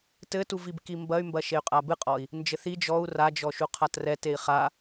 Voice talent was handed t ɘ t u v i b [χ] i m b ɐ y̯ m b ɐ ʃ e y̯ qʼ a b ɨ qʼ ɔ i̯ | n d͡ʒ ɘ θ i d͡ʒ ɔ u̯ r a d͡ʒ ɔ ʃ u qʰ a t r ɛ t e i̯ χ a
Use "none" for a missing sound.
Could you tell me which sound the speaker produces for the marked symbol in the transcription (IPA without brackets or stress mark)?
k